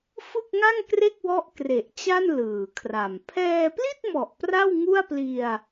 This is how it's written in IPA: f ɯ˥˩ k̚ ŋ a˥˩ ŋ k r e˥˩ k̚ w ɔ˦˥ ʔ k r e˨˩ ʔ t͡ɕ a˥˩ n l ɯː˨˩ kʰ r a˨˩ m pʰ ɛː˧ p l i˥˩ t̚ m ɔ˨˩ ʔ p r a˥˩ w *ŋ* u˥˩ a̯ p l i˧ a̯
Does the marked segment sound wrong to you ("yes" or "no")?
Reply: no